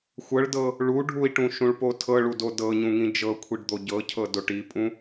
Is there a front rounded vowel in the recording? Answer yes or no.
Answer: no